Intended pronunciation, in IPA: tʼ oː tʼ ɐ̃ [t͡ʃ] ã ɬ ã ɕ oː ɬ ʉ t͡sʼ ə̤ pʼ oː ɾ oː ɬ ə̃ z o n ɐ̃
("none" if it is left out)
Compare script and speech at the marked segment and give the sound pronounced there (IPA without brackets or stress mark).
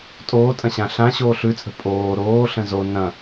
ɕ